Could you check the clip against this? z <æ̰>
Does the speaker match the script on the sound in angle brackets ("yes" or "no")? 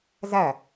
no